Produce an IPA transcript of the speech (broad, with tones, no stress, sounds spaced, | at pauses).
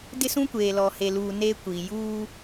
d ɪ˦ s ũ˦ kʷ eː˨ l ɔ˨ h e˨ l uː˨ n eː˦ kʷ iː˨ j uː˦